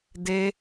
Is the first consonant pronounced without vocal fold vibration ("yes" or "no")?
no